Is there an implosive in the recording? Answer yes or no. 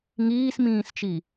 no